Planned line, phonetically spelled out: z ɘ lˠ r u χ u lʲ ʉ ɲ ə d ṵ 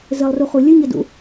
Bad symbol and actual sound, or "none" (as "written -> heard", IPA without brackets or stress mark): none